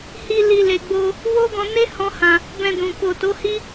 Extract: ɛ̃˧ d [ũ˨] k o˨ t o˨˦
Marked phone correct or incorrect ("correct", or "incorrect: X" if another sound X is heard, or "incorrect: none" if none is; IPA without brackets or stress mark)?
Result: correct